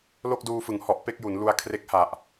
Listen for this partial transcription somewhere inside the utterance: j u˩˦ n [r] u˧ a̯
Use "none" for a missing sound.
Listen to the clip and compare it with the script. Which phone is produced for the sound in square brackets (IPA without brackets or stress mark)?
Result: l